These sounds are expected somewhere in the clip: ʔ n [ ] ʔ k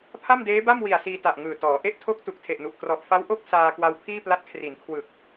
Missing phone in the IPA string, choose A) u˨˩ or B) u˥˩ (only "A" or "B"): A